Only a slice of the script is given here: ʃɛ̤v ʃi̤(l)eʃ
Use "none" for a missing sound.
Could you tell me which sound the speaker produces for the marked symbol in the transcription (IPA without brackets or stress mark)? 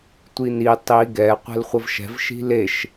l